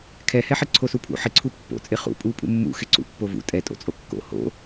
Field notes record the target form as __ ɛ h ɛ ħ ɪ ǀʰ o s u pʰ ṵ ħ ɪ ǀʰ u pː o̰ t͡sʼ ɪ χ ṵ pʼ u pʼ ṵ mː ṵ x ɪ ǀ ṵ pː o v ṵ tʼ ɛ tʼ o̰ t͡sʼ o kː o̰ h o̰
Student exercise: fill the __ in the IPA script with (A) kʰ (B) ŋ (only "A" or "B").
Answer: A